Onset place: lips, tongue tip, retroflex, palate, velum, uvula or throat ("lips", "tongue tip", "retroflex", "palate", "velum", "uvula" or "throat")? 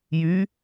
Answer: palate